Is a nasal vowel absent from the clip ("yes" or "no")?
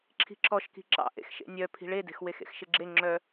yes